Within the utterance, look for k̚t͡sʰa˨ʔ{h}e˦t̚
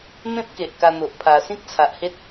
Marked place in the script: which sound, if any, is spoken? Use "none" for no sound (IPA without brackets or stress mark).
h